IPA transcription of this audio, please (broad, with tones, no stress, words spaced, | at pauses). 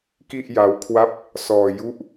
ki˥˩ʔ ja˦˥wkʰwa˥˩p̚ | sɔː˧ ju˥˩ʔ